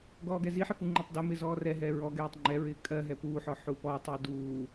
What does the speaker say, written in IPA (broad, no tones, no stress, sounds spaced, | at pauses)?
ɡ ɔː ɡ ɛ z i ħ ɪ f u ŋ͡ǃ u tˤ d ɜ m ɪː z ɔː r ɛ ɦ ɛː ɹ ɔ ɡ ɛː tˤ ŋ͡ǃ ɛ ɹ ɪː kʼ ɜ ɦ ɛ p uː ħ ɔ ħ u p ɔ tˤ ɪː d uː